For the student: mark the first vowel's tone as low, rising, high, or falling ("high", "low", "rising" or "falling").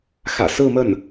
low